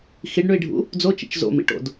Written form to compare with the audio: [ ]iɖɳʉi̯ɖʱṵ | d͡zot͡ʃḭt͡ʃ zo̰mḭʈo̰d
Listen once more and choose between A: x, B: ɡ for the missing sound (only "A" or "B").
A